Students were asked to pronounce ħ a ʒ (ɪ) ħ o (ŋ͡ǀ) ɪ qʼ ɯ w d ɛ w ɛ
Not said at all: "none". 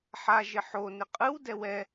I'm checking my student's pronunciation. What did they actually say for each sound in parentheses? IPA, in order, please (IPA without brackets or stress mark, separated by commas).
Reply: ɪ, n